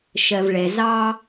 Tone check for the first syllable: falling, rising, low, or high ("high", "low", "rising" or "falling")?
low